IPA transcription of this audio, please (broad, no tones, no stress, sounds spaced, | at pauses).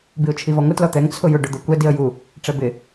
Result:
b i ʊ̯ t͡ʃʰ i v ɔ ŋʷ ɪ t l ɔ t̪ ɛ ŋ t͡sʰ ʊ j ʊ ɖ ʊ d̪ o kʷ ɛ d i ə̯ j u | ʈ͡ʂ ɛ b ɪ